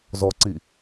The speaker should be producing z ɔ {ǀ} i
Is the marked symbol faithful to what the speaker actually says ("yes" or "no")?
yes